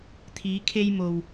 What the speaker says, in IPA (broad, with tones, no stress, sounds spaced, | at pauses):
t̪ʰ iː˨˧ kʰ e˧ j m o˨ w